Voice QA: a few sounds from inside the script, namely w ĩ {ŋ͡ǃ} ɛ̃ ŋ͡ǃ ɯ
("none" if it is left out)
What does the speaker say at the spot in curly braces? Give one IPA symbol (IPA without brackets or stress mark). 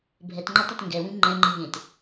ŋ͡ǃ